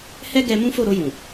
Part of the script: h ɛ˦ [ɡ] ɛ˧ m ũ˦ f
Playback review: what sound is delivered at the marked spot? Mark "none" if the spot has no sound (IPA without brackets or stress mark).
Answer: ɡ